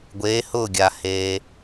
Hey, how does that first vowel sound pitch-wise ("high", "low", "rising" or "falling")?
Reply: rising